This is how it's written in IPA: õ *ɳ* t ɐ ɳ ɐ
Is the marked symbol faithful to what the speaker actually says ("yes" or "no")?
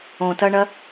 no